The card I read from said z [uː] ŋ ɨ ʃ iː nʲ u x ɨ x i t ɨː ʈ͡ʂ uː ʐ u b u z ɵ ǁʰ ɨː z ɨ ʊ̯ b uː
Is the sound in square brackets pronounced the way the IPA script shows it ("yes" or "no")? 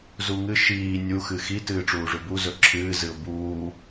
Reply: no